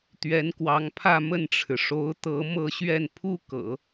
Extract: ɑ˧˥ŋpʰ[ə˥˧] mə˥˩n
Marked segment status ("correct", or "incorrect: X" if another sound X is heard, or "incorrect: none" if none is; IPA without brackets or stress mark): incorrect: ä˥˧